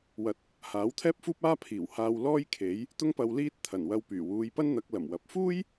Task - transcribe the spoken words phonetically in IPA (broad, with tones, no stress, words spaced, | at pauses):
wɐ˨˥t̚ | haː˨˥wt̪ʰɛː˥p̚fuː˥p̚ aː˥pʰiː˨˩whaː˧w lɔː˥jkʰe˨˥j | t̪ʊ˥ŋpɐ˧w liː˥t̚ t̪ʰɐ˨˩nwɐ˧wpyː˨˩ wuː˨˧jpɐ˥nn̪ɐ˨˥k̚ lɐ˨˩mwɐ˨˥p̚ fuː˥j